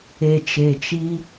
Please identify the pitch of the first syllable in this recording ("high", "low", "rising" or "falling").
low